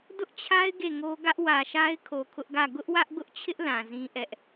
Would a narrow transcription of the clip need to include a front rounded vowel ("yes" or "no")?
no